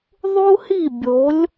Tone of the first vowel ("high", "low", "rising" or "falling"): high